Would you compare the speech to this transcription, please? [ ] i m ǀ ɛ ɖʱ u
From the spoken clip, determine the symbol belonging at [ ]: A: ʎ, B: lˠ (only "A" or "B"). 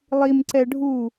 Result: B